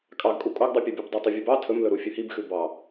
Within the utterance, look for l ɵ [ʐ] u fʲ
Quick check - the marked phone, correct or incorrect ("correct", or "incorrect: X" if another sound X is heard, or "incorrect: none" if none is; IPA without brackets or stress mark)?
incorrect: ɾ